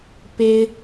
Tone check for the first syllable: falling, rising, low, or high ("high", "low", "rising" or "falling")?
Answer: high